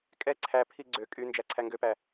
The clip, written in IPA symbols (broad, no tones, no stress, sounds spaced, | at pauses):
kʼ ɛ ǀʰ æ pʰ i ɡ͡ǀ ø kʼ y n d͡ʒ æ ǀʰ æ ŋ ɡ ø p æ